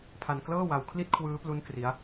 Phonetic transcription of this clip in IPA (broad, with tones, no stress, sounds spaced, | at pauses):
pʰ a˧ n k l ɤː˥˩ w a˧ w kʰ l i˥˩ t̚ kʰ w ɯː˦˥ p l u˦˥ n k r i˦˥ a̯